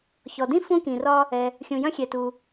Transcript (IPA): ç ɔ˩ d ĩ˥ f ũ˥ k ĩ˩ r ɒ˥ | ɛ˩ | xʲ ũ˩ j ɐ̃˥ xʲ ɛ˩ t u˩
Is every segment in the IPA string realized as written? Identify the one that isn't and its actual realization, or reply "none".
none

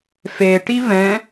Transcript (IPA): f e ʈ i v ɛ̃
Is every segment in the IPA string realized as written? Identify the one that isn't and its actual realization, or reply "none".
none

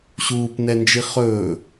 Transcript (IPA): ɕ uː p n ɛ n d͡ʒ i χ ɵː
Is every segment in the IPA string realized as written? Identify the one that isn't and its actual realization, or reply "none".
none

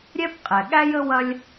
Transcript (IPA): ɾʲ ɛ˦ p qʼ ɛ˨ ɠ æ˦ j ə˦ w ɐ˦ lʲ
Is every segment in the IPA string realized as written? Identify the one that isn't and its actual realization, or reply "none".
none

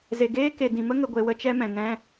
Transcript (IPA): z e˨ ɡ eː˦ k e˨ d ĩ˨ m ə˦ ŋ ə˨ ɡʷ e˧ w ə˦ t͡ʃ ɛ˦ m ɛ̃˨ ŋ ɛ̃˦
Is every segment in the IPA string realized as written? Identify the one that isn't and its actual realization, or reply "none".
none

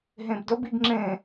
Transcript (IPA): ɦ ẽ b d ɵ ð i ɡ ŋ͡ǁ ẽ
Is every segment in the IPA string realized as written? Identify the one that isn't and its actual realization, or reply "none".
ð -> b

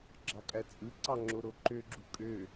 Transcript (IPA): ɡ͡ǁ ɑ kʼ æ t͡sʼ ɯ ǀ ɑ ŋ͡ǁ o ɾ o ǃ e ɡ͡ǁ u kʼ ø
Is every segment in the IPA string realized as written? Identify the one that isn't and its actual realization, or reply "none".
e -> ø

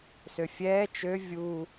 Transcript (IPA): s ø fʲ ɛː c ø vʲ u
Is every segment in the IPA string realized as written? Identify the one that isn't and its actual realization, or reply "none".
c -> t͡ʃ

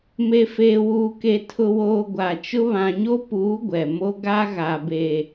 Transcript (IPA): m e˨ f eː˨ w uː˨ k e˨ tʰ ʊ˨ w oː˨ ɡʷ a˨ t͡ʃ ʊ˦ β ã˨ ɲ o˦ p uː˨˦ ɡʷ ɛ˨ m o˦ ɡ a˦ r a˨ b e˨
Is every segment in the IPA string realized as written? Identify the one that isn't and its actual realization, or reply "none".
r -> ɣ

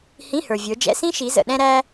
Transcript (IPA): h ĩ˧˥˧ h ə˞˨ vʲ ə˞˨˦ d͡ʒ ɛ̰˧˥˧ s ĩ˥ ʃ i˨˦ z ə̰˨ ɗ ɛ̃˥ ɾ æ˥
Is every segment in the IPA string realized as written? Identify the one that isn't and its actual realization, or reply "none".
none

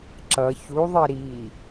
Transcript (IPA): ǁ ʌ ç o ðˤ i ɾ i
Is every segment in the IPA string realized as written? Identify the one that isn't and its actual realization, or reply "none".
o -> u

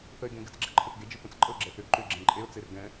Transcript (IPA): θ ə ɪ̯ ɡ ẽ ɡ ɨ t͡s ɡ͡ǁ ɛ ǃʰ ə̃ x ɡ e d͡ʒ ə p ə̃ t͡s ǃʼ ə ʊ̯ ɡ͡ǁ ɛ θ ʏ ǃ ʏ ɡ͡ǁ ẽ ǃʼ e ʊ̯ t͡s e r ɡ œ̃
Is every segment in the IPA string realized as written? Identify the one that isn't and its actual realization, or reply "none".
œ̃ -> ɛ̃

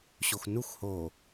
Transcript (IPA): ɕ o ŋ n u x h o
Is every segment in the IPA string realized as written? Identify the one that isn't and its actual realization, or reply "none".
ŋ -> x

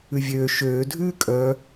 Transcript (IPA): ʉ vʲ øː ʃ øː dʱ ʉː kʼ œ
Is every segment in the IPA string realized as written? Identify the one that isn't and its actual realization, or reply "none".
none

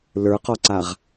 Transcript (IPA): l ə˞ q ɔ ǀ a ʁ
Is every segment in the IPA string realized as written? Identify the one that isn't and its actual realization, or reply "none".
none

